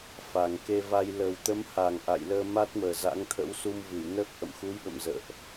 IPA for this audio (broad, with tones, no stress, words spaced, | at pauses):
fa˨˩ŋke˧va˧j lə˨˩wt̪ə˨˦mha˨˩ŋ ʔa̰˧˨jləː˧ma˦˥t̚məː˨˩ za̰˧˥ŋt̪ʰə̰˧˥w su˧mvɨ˧˩jnəː˦˥k̚ ʔə̰˧˨mxu˨˦jɓə̰˧˨m zə̰ː˧˨ʔ